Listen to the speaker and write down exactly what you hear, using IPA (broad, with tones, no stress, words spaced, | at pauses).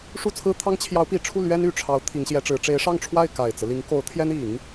ʂu˥˩t͡sʰɹ̩˥t̪ʰɑ˥ŋ t͡ɕʰjɑ˧˥ʊ̯pi˨˩ʈ͡ʂʰu˥˩ lɥɛ˥n y˨˩ʈ͡ʂʰɑ˧˥ʊ̯ t̪ʰi˧˥ŋɕjɛ˧˥ʈ͡ʂɻ̩˧˥ ʈ͡ʂe˧˥ɪ̯ʂɑ˥˧ŋʈ͡ʂʰwa˥˩ɪ̯ ka˨˩ɪ̯t͡sɹ̩˦li˧˥ŋ ko˧˥ʊ̯ t̪ʰjɛ˥n i˨˩˦ŋ